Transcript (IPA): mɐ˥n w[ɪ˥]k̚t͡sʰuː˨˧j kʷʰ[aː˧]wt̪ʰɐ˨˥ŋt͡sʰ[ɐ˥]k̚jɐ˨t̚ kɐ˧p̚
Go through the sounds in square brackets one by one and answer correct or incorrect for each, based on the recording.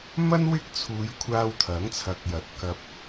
correct, correct, incorrect

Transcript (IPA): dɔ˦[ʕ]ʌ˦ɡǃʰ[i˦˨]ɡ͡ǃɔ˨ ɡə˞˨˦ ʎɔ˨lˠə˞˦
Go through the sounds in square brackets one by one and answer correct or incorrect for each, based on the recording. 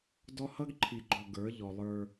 incorrect, incorrect

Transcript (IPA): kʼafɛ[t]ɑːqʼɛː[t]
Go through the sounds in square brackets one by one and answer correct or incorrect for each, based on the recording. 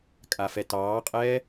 correct, incorrect

